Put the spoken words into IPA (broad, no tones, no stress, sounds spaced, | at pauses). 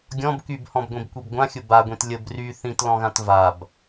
ɡʲ ɔ̃ b k y b h ɔ̃ b ɡʷ ĩ b kʷ i b ɡʷ ã xʲ ʊ b a ɡʷ ĩ t lʲ ə b r y θ ĩ t l ɔ̃ ɣ ã t v a b